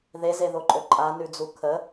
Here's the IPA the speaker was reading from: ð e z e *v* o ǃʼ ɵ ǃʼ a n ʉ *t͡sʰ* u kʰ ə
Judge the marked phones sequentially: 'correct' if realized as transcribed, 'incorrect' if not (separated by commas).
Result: incorrect, incorrect